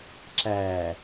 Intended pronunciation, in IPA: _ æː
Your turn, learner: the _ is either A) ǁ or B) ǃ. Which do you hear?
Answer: A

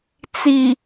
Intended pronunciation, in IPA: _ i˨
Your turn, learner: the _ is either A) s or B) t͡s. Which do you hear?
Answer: B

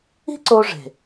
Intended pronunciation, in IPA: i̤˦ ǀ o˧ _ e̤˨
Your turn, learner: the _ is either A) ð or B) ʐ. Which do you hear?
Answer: B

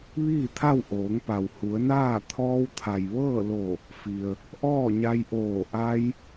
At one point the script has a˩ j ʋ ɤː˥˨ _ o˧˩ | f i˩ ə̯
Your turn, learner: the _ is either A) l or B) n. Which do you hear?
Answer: A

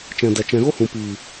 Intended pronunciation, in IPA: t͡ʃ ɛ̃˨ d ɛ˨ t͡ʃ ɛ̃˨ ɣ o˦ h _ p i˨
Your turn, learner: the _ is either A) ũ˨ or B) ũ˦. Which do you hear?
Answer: A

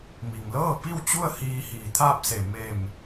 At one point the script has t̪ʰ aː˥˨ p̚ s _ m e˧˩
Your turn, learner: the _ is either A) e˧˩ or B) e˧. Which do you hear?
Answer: A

